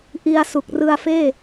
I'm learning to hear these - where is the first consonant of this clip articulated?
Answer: throat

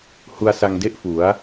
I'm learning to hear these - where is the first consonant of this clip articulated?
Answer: throat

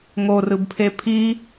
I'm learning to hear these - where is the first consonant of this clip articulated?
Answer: velum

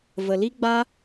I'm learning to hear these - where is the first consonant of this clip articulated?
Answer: lips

